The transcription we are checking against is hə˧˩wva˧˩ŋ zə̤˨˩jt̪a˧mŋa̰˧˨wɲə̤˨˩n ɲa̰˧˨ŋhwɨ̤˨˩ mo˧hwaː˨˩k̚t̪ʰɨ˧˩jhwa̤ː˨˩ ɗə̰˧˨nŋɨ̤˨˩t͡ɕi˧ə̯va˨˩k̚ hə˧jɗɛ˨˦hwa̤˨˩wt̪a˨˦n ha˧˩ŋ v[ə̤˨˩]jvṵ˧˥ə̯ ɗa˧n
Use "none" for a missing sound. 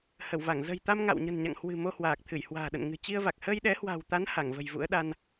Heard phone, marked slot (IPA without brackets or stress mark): ə̤˨˩